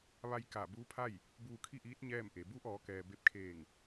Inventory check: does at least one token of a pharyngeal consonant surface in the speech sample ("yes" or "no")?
no